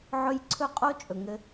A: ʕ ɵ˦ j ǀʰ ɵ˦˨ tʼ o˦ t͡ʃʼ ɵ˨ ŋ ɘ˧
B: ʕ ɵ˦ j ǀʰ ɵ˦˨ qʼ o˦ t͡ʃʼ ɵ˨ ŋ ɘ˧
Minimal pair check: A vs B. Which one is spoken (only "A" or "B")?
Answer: B